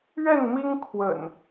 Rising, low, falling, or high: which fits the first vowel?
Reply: falling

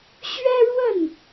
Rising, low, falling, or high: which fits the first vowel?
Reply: high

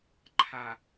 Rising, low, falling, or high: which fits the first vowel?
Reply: low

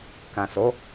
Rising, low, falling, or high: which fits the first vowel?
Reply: low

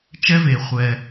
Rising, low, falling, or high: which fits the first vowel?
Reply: high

